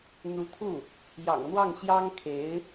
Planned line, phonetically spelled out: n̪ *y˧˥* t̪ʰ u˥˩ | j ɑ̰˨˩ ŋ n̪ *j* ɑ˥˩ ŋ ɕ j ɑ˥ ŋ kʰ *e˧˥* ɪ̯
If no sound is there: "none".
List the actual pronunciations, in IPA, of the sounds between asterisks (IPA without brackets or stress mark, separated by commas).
u˧˥, w, e˧˥